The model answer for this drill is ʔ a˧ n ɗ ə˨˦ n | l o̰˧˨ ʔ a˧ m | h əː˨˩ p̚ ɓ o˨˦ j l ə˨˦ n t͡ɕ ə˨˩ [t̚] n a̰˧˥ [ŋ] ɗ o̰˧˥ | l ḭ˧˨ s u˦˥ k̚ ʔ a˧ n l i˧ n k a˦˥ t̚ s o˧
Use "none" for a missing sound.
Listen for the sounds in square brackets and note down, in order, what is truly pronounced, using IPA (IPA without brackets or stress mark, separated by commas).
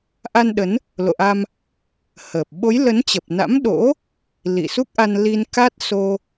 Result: p̚, m